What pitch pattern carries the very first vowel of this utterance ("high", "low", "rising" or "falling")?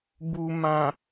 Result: low